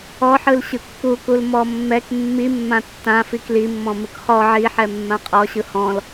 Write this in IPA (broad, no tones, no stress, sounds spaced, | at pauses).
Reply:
ɔ ħ ɯ l ɕ ɯ kː u k u l m ɔ mː ɛ k mː i mː ã tː ã f i k l i mː ɔ̃ m ɯ k χ ɔ ʕ i ħ ɛ mː ã qʼ ɔ ɕ ɯ h ɔ̃ l